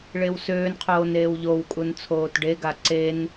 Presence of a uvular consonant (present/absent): present